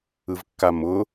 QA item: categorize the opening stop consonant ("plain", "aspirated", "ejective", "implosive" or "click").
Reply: plain